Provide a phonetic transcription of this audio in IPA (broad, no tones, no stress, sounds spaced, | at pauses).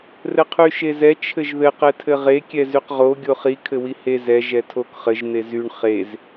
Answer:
r ɘ qʰ y ʃ e z ɛ t͡ʃʰ ɘ ʒ ð ɘ q ɛ tʰ ɘ ʁ e kʲ ɛ z y q ʁ o ɡʲ o χ i kʰ ɘ w i h e z ɛ ʒ ɛ tʰ o k χ ɘ ʒ n̪ e z y ɳ χ e z